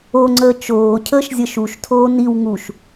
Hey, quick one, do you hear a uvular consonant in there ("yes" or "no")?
no